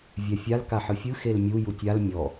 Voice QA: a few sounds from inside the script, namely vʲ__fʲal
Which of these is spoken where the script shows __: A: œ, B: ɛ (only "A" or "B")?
B